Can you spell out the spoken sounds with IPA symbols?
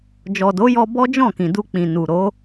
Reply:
d͡ʒɔ˨do˨˦jɔ˧ bɔ˦d͡ʒɔ̃˦˨kĩ˨ du˧k͡pĩ˨ nu˨ɾo˨˦

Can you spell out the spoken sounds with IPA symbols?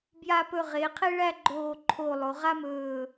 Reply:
bja˧pɵ˧˩ ʁe˩˧qʰe˥ ɭæ˥˧ɡ͡ǃoː˧˩ ǃʰo˧˩ lˠo˩˧ʁa˥mɵː˧˩

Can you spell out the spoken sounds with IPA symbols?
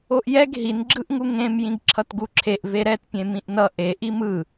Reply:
oʔjɛɡ ɦin ɡ͡ǁɯʔŋuŋẽm jĩɡǁʰʌtɡuǁʰeʔ veɾɛt pʲẽmĩʔnʌ ʔe ʔimɯ

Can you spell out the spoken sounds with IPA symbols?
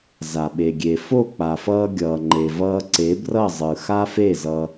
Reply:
za˨ɓe˨ɡʲe˨ fo˦˨k͡pa˨fʌː˧ ɡʲʌː˨ŋ͡ǃe˨vʌː˧ ǀe˨˦brʌ˦˨zˤɯ˨ xa˦fe˦˨zʌ˧

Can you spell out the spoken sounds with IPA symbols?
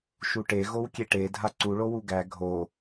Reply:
ʃuʈe ɣowkʲeʈe dʱaǀu ɭowuɡæ ɡʱo

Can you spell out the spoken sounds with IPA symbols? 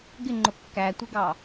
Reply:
ɡɪŋ͡ǃʊ kːætʷɪɡɑ

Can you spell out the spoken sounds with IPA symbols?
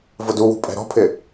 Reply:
vʊduwṳ pʼɛ̤ɾɔ̤pʰɪ

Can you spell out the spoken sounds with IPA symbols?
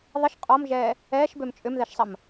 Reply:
ðˤəʃ qʼɔmʒɛː | ɛːʃbøm t͡ʃʼʏmðɛʃsˤɐm

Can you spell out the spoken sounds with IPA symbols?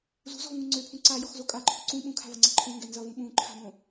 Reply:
zṳzɔ̤vŋũ ŋ͡ǀøpʰũ ǀajɔxzo kʼaǃʰu ǀũ ɓũkʰa̤vʌŋ͡ǀa ǃʰõŋɡɛ nzʌvũ ɓũǃʰa̤mõ

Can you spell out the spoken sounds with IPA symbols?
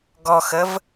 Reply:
ɡɔxəv

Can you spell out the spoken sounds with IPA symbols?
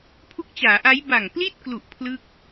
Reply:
pʰu˦˥k̚t͡ɕaː˩˦ʔa˦˥j ba˨˩ŋpli˥˩t̚klu˨˩ʔ pʰlɯ˥˩k̚

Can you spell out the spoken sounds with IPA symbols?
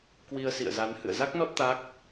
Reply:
kwi˧ə̯sḭ˧˨ə̯za˨˦n hɨ̰˧˨ə̯za˦˥k̚nɔ˦˥t̚ t̪a˦˥k̚

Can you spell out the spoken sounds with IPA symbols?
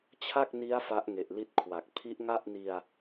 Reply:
t͡ɕʰa˥˩k̚ni˦˥a̯ fa˦˥ʔŋe˨˩ʔ li˦˥t̚kʰwa˨˩k̚ pʰi˦˥ʔŋa˥˩ʔni˧a̯

